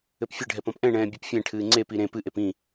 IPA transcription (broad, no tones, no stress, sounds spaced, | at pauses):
ɘ p fʲ ɘ ɖʱ ɛ p ɔ̃ p ʔ ɛ̃ ɳ ɛ̃ː bʲ ɘ p fʲ ɛ̃ ʈʰ ɨː ŋ͡ǀ e p i ɾ ẽ p ɨ ʔ e p ĩ